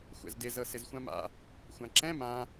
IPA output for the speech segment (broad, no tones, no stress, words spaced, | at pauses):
xʷɛ̰zdɪ zɤsɪzxʷãma̰ | xʷãǁɛ̃ mã